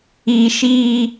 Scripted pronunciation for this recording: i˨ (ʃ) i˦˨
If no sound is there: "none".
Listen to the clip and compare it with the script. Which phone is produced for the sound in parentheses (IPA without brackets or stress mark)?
ʃ